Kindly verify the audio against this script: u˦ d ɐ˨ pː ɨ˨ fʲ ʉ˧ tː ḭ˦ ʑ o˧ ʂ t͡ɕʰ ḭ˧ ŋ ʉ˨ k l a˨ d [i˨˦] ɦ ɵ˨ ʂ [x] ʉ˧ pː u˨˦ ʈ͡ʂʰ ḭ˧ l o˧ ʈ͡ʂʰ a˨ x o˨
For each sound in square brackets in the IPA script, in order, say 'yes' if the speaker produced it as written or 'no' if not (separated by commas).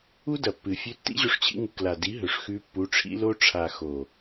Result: yes, yes